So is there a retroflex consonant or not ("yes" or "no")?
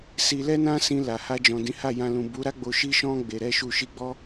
no